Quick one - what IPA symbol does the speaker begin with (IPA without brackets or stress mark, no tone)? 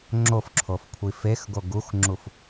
ŋ͡ǁ